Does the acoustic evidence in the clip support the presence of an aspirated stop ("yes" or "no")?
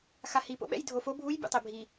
no